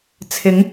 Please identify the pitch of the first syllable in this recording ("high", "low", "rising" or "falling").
rising